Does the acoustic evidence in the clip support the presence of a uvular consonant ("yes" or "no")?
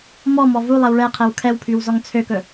yes